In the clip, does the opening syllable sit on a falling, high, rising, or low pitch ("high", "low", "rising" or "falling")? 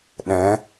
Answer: rising